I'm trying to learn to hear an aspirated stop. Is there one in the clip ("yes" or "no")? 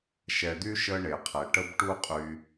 yes